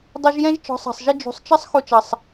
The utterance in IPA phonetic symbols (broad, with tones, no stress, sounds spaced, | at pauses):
dˤ i˧ ʒ j ɛ̃˦ ʒ t͡ʃ ɔ̤˨˦ sˤ ɑ̤˨ sˤ ʒ ɪ˧ d͡ʒ ṳ˨ sˤ t͡ʃ ʌ˦ sˤ x u˧ t͡ʃ ʌ˨ sˤ